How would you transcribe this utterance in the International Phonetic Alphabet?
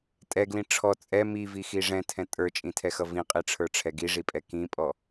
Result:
tʼ ɛ ɡ l ĩ ʈ͡ʂʰ ɔ t͡sʼ ɛ m i v i x i ʐ ɛ̃ tʰ ɛ̃ tʼ ə˞ t͡ʃʼ ĩ tʰ ɛ x ʌ v ĩ qʼ i ʈ͡ʂʰ ə˞ ʈ͡ʂʰ ɛ ɡ i ʐ i pʼ ɛ k ĩ pʼ ɔ

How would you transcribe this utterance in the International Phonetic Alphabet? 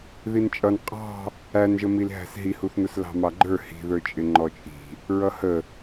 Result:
ð i n t͡ʃʼ ʌ n qʼ ɑ̤ | æ n ʒ ə m i l ɦ æ̤ s ɦ i h u θ n ʊ s l ɑ̤ m ɑ ɡ͡ǃ ə˞ h i̤ ð ə˞ t͡ʃʼ ɪ ŋ͡ǃ ɔ t͡ʃʼ i̤ | ɹ ʌ h ə

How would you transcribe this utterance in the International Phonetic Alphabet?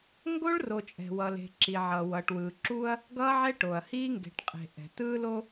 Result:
ŋ ɡ o˦ ɭ r o˨ t͡ʃʼ ɛ̤˨ w ʌ˨ l e̤˨ ǁ i˨ ʕ ʌ˨ w ʌ˨ ʈ w ɯː˨ ǁ u˦ ɐ̯ | ɡ ʌː˦ ʕ ɛ˦ ʈ o˨ ɐ̯ h iː˦ ŋ ɡ e̤˨ ʈ qʼ e̤˨ ʔ ɛ̤˨ t ɯː˦ l o˦

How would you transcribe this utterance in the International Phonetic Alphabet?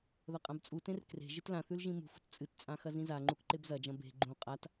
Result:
ð ɐ qʼ ã b t͡sʼ u t ẽ r k r e̤ ʒ ɨ t l ã θ ʉ l ʒ ĩ m ṳ f ṳ t t͡sʼ ɨ t t͡sʼ ã x ɐ z ĩ z a ŋ͡ǃ u k ǃ e b z ɐ d͡ʒ ɐ̃ b e̤ ɡ͡ǃ ũ qʼ a t

